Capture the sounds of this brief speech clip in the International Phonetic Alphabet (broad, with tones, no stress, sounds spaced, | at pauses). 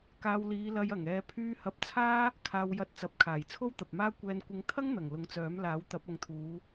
k aː˧ w l iː˨˧ l ɐ˧ j ɐ˨˩ ŋ ɛː˨ pʰ yː˧ h ɐ˨˥ p̚ t͡sʰ aː˥ | kʰ aː˧ w j ɐ˧ t̚ t͡s ɐ˨ p̚ kʰ aː˨˩ j t͡sʰ o˥ w t̪ ɐ˨ p̚ m aː˥ kʷ ɛː˧ n kʷ ɪ˧ ŋ t̪ʰ ɐ˥ ŋ n̪ ɐ˨˩ ŋ l ʊ˨ ŋ t͡s œː˨˥ m l aː˨˥ w t̪ ɐ˨˥ p̚ ɐ˨ ŋ t̪ʰ uː˨˧